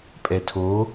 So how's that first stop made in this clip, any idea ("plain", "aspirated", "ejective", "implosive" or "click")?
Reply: ejective